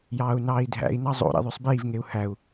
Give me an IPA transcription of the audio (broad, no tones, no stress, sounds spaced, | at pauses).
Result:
j ɑː u̯ n ɑː i̯ dʱ æ̰ i̯ n ɑ zˤ o̰ ɾ ḭ ðˤ ø sˤ b iː v ŋ e u̯ h æ u̯